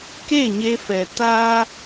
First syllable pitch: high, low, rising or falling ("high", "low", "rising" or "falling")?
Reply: falling